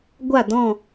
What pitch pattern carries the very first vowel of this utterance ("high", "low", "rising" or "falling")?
falling